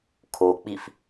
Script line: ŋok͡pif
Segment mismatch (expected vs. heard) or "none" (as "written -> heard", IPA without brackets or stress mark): ŋ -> kʰ